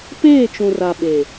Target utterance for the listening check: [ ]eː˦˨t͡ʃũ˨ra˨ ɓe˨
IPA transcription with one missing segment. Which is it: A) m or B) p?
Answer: B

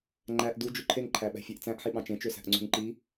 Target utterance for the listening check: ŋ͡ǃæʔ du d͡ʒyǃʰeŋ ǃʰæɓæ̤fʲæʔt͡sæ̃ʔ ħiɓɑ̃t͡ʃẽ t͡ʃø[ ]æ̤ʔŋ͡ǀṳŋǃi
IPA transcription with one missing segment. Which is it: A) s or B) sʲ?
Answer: A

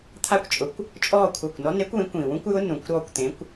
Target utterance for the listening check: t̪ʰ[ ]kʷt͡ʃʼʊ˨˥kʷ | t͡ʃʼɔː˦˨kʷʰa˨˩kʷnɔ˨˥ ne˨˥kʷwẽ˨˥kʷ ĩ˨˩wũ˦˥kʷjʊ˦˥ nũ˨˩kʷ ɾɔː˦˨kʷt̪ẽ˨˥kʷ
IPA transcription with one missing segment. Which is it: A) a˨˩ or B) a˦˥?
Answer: B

